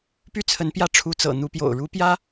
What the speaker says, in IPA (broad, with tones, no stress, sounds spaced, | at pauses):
p y˥ t͡sʰ ə˧˥ n p j ä˥˩ ʈ͡ʂʰ u˧˥ t͡s ɤ̰˨˩ n̪ u˧˥ p j o̰˨˩ ʊ̯ ɻ u˧˥ p j ä˥